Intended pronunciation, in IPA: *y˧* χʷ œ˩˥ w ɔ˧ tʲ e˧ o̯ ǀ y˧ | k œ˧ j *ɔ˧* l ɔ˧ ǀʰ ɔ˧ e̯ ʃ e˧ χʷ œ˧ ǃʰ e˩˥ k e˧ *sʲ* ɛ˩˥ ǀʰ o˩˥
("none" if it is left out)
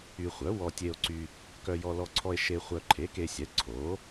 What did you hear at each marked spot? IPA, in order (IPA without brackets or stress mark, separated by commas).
y˧, ɔ˧, sʲ